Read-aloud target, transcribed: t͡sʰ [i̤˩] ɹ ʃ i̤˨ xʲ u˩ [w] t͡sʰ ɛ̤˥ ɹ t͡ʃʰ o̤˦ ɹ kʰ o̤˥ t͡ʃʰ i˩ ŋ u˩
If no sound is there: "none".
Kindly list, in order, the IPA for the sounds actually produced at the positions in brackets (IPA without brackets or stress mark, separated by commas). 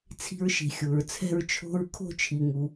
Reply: i̤˦, ɹ